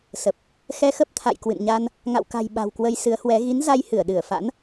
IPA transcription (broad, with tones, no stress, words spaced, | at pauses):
sə˨˩p̚ | xɛ˧xə˦˥p̚t̪ʰa̰˧˨j kwɨ̰˧˨nɲa˧n | ŋa̰˧˨wka̤˨˩j ɓa̤˨˩wkwə˧j sɨ˨˦ə̯hwɛ˨˦ ɣi˨˦nza˧jhɨ˧˩ə̯ ɗɨ˧˩ə̯fa̰˧˥n